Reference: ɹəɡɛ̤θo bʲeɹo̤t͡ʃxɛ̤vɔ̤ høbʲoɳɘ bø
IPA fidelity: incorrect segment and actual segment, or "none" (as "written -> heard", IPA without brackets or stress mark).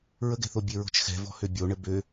none